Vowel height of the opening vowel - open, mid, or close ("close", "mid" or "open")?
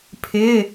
close